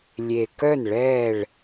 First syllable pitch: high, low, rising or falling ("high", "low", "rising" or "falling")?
low